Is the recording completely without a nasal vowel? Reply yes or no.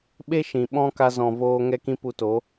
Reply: no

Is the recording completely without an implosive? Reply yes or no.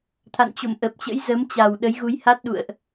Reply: no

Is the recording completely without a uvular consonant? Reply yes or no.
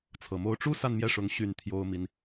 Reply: yes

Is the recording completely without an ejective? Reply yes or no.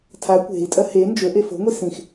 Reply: no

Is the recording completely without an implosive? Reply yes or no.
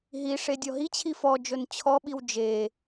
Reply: no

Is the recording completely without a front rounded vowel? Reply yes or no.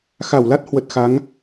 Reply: yes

